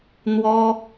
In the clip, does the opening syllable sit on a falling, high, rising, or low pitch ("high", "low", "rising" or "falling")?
high